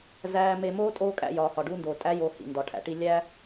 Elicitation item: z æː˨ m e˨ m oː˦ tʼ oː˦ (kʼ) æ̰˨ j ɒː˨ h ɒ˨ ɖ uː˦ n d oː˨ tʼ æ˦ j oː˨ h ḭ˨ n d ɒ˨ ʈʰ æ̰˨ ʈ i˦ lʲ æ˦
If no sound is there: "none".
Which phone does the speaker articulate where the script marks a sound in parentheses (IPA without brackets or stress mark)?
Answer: kʼ